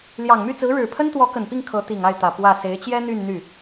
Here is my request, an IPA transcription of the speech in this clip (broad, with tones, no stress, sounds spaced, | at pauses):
l j ɑ˨˩ ŋ m y˥˩ t͡s ɹ̩˧˥ ɻ ɻ̩˨˩ pʰ ə˥ n t̪ w ɔ˧˥ k ə˨˩ n p i˥˩ ŋ kʰ ɤ˧˥ t̪ i˨˩ ŋ a˥˩ ɪ̯ t̪ ä˨˩ p w ä˥˩ s e˧˥ ɪ̯ t͡ɕ j ɛ˥ n̪ y˥˧ n n̪ y˥˩